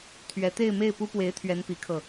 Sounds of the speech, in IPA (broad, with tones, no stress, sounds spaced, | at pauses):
t̪ʰ ɥ ɛ˧˥ t̪ e˥˧ ɪ̯ m e˥˩ ɪ̯ p u˥ p w e˧˥ ɪ̯ t̪ʰ ɥ ɛ˧˥ n p i˧˥ kʰ ɤ˧